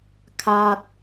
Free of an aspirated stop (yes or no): no